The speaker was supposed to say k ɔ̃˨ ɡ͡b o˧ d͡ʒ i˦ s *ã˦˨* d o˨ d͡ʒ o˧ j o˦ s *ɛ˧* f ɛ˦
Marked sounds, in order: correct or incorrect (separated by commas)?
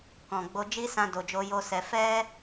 incorrect, correct